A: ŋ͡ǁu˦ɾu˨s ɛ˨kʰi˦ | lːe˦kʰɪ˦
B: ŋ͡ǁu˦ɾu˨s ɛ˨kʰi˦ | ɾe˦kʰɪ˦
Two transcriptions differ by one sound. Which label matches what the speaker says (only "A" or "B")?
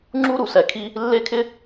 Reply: A